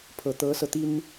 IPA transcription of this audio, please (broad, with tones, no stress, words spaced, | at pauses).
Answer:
pʰɤ˨˩t̪ɤ˧˥sɤ˧t̪i˥n